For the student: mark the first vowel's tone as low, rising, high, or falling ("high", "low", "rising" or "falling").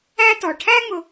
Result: high